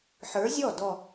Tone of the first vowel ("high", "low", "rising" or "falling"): rising